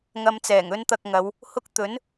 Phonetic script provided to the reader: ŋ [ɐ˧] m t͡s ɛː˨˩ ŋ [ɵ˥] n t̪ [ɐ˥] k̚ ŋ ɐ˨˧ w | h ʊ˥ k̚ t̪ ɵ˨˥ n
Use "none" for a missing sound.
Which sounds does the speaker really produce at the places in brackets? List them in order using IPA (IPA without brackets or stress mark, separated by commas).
ɐ˧, ɵ˥, ɐ˧